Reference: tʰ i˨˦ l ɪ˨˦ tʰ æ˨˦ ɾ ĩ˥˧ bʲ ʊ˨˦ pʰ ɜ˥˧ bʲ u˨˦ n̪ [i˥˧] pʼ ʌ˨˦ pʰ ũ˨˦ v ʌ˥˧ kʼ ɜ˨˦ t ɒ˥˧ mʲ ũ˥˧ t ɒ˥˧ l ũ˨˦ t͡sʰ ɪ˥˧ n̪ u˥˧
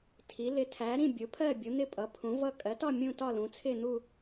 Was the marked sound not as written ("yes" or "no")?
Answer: yes